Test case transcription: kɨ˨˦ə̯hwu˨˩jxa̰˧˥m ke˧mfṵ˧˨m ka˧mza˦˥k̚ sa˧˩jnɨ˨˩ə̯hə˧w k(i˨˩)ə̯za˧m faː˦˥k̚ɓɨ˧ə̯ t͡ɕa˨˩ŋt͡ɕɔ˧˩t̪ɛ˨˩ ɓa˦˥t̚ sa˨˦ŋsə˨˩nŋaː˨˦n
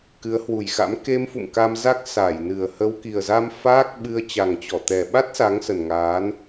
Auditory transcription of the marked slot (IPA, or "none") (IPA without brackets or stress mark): i˨˩